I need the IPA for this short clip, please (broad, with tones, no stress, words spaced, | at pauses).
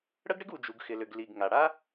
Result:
ɽə˦ɡɽɪ˦ɡu˨ d͡ʒu˨ɡxɪ˨lʏ˨ɡ li˨ɡ ŋa˨ ɽa˦